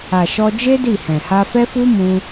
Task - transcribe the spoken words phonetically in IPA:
a˨ ʃ ɔ˧ d͡ʒ e˦ d i˦˨ h ɛ̃˨ h a˧ f ɛ˦ f u˦ m ũ˧

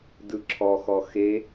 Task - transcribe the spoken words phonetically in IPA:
d ɯ ǁʰ ɔ x ɔ x e

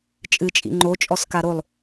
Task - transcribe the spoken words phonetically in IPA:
t͡ʃʼ ɨ t͡ʃʼ ḭ ŋ͡ǃ o t͡ʃʼ ɔ s k a ɾ o lˠ

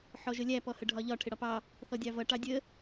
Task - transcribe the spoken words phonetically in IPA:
ħ ɔ ʒ ə lʲ æ p ɔ h ə ɖʱ ɒ ʎ ɒ ʈʰ ɪ ɽ ɒ p ɑ | θ ɔ dʲ ɑ v ʌ ʈ ɑ dʲ ə

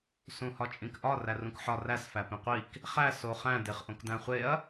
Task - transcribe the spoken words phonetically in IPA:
s ũ h ɒ t͡ʃʼ ĩ k ʔ ɒ r æ r ũ k ħ ɒ r æ s f æ p ĩ qʷ i k | χ æ s o χ æ̃ d e χ ʔ õ k d æ̃ χʷ e ɐ̯

